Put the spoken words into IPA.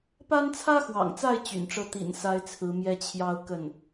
p a˥ n t͡sʰ ä˥ x w ɑ̰˨˩ ŋ t͡s a˥˩ ɪ̯ t͡ɕ y̰˨˩ n ʈ͡ʂ ɤ˥˩ t̪ ḭ˨˩ n s a˥ ɪ̯ t͡sʰ ɹ̩˧˥ m j ɛ˥ t͡ɕʰ j ɑ˥˧ ʊ̯ k ə˥˩ n

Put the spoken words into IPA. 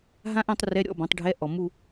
ɦ ã˦˥ ʔ ã˥˧ tˤ r ɛ˧˥˧ ɾʲ ɔ̰˧˥˧ b ɔ̃˩˥ tˤ ɖʱ ɛ˧˥˧ ʔ ɔ˨ m u˥˧

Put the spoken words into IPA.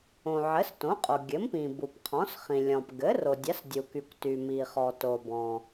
õ˩ ʕ ɘ˩˥ s t õ˩˥ qʼ o˩ ɡʲ ɘ˩˥ m p ĩ˩ b u˩ p qʰ ɔ̃˩˥ s χ ĩ˩ lʲ ɔ̃˩ p ɡ ɘ˩˥ r o˩ dʲ a˩˥ s dʲ u˩ k y˩ kʷ t y˩ m i˩ χ ɔ˩ t o˩ b ɔ̃˩

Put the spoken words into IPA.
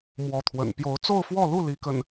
m w ɔ˨˦ t̪ʰ w ə̰˨˩ n p j o˨˦ ʊ̯ t͡s o˥˨ ʊ̯ f w ɔ˥˨ l u˥˨ l i˨˦ k ə̰˨˩ n

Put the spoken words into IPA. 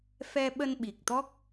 f ɛ˧ ɓ ə˧ n ɓ i˨˩ k̚ t̪ ɔ˦˥ k̚

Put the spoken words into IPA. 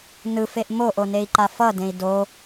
n ɯ f e ʔ m o ʔ o n e i̯ ǃ a f ʌ d ẽ i̯ d o

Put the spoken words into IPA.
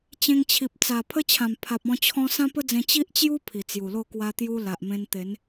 t͡ɕ ẽ˧ ŋ t͡ɕʰ i˨ p̚ t͡s a˨˩ pʰ ə˦ t͡ɕʰ ã˨˩ m pʰ a˨ p̚ ɔ̃˧ t͡ɕʰ ɔ̃˦ s ã˦ p ə˦ d͡z ẽ˧ t͡ɕ i˦ ʔ t͡ɕ j u˦ pʰ i˨˩ t͡s j u˨˩ l o˥˧ k w a˦ t̪ j u˦ l a˨ ʔ m ẽ˧ n t̪ e˨˦ n

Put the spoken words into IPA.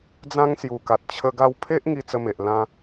d͡z ã˦ ŋ s j u˨˩ k a˨ t̚ t͡ɕʰ ə˦ ɡ a˧ w pʰ e˦ ʔ ŋ i˦ t͡s ə˦ m e˨ ʔ l ã˦

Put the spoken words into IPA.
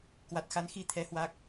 k w a˨˩ t̚ x a˨˦ n x i˧ t̪ʰ ɛ˨˦ h w a˦˥ k̚

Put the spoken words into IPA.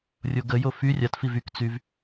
rʲ o ɡ ə j o f y rʲ a t f i v y k t͡s y v

